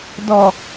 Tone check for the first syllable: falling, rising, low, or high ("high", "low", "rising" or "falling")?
low